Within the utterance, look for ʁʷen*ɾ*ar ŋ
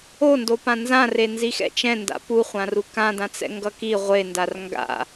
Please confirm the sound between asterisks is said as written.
no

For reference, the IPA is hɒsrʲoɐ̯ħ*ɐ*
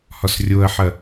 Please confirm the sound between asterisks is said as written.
yes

